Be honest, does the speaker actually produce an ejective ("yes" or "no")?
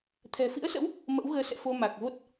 no